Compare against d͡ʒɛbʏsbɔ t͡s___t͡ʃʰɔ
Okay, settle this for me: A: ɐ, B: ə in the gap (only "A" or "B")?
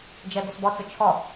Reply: B